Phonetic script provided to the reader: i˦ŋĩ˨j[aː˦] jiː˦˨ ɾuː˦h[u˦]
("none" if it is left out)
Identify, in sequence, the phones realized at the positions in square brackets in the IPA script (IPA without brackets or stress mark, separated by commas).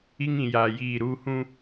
aː˨, ũ˦